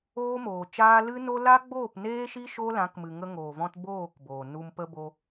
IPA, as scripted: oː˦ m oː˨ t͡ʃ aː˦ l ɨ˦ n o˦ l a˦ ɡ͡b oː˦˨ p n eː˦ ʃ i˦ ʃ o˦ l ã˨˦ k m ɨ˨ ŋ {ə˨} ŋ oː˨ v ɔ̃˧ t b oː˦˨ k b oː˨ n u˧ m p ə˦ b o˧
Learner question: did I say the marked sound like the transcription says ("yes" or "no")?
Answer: no